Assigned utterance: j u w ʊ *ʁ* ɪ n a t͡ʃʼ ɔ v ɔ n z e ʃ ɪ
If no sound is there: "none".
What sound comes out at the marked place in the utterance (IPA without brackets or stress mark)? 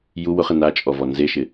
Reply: χ